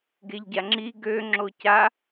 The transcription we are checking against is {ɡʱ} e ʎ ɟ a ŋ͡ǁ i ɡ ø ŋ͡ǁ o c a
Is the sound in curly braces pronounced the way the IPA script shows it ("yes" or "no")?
no